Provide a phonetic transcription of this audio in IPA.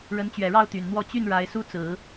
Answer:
ɻ ə˧˥ n t͡ɕ ɥ ɛ˨˩ ɻ ɑ˥˩ ʊ̯ t̪ y˨˩ n n̪ w ɔ˥˧ t͡ɕ y˥˩ n ɻ a˧˥ ɪ̯ s u˥ t͡s ɹ̩˨˩˦

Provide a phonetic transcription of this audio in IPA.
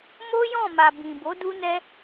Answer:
m o˦ j ɔ̃˦˨ m a˨ b ĩ˨ b o˨˦ d u˦ n ɛ˦

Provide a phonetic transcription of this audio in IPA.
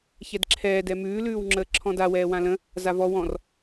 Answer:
ç ɛ d ǁʰ ɛː d ɛ m ʉː l ʉː w ŋ͡ǁ əː ǁʰ ɔ̃ d a w ɛː w ã l ə̃ | z a v ɔ w ɔ̃ r

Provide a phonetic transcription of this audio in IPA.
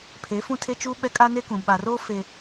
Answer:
pʰ e˨˦ f ũ˦ tʰ e˦ t͡ʃ u˦ ɓ ɛ˦ kʼ a˦ n e˦ k ũ˨ ɓ a˨ r oː˦ f e˨

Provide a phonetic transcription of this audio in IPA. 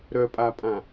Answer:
ɾ œ pʼ a pʼ ã

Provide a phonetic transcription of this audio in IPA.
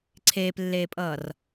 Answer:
ǀʰ eː p lː eː pʼ ʌː r

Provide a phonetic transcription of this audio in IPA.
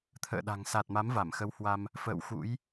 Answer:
t̪ʰ ə̰ː˧˨ ɗ a̤˨˩ ŋ s a˨˩ t̚ m a˨˦ m v a˧˩ m x ə˨˦ w h w a˧ m | f ə̰ː˧˨ w x ṵ˧˥ j

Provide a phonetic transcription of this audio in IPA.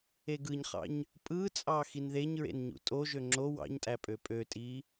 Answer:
e ɡ ɯ ɲ χ ɑ̰ ɲ | pʼ ɯ t͡sʼ ɑ x i n ð e ɲ ɹ ḛ n ɲ ṵ tʼ o ʒ ø ŋ͡ǁ o w ɑ̰ ɲ tʼ æ pʼ ø pʼ ø tʼ i

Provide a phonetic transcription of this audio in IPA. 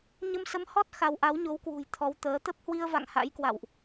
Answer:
ɲ ə˧ m s ə˨˦ m h ɔ˦˥ t̚ x a˧ w ʔ a˨˦ w ɲ o˨˦ w k w ṳ˨˩ j t̪ʰ ɔ˨˦ w t̪ əː˨˦ t̪ ə˦˥ p̚ h w i˧ ə̯ v a̰˧˨ ŋ h a̰˧˥ j k w a̰˧˨ w ʔ

